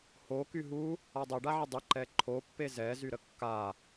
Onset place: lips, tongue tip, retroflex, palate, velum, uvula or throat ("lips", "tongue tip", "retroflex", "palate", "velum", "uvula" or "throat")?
throat